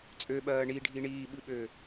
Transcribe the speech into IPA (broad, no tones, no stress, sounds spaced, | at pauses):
t͡sʼ ø ɓ ɜː ɳ i ɖʱ i ɳ iː ɓ ɨ ɓ ø